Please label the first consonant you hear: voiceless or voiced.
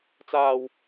voiceless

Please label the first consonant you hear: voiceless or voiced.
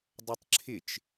voiced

